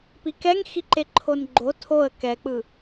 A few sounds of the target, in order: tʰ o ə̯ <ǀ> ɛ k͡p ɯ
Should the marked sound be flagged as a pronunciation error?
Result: yes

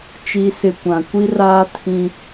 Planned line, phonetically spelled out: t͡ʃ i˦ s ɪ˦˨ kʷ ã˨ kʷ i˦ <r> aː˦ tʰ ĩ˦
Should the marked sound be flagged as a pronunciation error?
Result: no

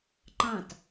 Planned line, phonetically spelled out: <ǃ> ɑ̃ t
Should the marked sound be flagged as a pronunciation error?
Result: no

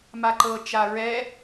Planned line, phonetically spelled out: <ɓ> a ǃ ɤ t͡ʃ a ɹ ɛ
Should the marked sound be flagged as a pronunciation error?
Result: yes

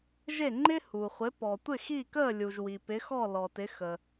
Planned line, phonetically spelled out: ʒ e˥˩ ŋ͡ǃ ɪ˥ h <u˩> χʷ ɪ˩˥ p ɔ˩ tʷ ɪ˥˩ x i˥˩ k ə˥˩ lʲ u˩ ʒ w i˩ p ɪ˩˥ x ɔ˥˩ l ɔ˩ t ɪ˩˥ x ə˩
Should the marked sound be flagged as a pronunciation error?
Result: no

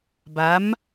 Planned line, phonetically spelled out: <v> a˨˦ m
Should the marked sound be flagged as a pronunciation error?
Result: yes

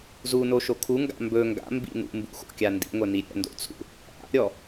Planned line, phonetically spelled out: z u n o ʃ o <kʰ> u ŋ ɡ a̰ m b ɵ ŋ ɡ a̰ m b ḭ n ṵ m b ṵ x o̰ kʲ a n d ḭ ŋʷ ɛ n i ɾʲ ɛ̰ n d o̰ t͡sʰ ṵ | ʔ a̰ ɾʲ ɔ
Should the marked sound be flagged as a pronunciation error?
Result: no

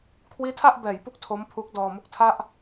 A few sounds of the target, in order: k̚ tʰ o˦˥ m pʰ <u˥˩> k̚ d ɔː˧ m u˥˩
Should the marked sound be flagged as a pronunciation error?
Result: yes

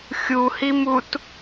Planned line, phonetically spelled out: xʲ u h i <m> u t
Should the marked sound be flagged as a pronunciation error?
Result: no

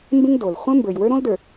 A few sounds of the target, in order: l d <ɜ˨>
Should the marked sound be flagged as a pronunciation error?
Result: yes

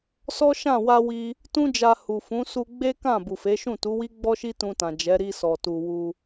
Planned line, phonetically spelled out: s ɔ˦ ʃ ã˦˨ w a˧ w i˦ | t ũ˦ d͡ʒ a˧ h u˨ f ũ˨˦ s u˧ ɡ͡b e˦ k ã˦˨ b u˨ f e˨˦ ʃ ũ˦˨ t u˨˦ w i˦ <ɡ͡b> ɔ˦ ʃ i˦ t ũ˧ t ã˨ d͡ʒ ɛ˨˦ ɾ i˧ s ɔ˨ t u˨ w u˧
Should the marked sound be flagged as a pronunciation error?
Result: no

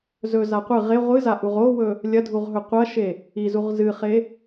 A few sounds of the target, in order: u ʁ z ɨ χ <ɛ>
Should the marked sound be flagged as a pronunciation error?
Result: yes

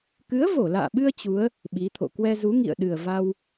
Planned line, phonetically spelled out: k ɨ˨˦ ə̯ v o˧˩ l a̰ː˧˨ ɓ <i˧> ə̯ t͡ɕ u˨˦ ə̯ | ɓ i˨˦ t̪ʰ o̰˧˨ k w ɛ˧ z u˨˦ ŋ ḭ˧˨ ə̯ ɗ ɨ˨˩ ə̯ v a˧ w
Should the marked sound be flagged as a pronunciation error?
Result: yes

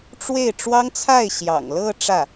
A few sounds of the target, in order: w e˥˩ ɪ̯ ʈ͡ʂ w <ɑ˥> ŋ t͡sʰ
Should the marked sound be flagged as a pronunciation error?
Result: no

